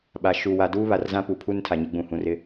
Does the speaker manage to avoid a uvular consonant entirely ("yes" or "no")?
yes